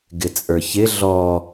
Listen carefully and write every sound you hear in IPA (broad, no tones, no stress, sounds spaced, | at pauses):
ɡ ɪ t͡sʼ ə˞ ç ɪ ɮ ɔ